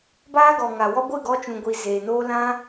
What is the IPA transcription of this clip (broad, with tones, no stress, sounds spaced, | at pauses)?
b aː˦ ɡ ɔ˨ ŋ a˨ w ɔ˦ ɡʷ ɨ˦˨ ɡ ɔ˧ t͡ʃ ũ˨ ɡʷ i˨ z eː˨ n oː˦ l ã˦